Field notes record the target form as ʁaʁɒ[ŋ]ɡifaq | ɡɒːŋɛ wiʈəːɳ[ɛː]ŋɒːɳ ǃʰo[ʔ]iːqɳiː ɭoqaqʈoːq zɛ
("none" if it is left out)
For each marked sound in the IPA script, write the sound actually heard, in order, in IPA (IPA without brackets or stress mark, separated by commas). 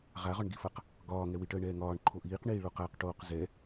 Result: ɳ, ɛː, ʔ